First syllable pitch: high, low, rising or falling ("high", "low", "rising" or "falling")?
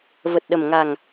low